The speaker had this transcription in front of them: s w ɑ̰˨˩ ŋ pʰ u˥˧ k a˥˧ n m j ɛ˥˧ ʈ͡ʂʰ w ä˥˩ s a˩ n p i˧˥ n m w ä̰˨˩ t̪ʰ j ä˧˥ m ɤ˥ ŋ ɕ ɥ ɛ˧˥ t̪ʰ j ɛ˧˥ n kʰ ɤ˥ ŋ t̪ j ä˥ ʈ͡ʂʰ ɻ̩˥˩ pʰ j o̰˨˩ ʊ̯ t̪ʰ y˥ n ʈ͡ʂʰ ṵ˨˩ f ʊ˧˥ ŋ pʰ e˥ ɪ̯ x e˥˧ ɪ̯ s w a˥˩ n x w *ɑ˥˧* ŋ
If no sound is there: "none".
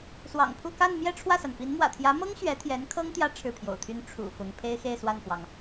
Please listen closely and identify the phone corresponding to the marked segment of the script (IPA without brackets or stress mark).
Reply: ɑ˩